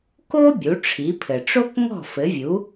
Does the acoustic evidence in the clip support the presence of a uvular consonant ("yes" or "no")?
no